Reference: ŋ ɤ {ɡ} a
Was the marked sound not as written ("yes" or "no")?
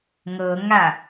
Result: yes